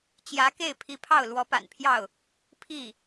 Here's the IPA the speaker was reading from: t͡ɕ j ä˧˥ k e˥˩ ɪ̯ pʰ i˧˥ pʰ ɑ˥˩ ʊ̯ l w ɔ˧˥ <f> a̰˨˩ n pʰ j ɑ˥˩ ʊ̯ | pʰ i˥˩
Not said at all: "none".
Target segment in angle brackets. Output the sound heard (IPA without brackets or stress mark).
p